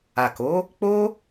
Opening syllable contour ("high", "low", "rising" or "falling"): low